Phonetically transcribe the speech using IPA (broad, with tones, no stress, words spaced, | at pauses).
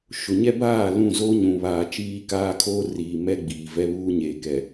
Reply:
ʃʊ˨ɲɛ˦baː˦˨ lũ˦˨ zoː˦ɲũ˨βaː˨ t͡ʃiː˦kaː˦kʰoː˦riː˨ mɛ˦ɡ͡biː˨vɛ˦ βuː˦ɲeː˨kɛ˨